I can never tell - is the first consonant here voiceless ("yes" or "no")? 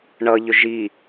no